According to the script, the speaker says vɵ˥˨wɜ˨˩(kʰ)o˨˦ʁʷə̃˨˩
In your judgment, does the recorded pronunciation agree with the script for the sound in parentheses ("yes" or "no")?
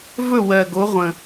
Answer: no